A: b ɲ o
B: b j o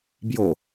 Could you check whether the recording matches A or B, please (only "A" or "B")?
B